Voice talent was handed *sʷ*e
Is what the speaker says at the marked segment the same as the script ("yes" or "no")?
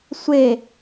yes